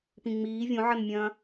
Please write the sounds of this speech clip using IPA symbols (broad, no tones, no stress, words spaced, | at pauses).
pĩŋ͡miː vʲõʕɐnmʲɐ̃ː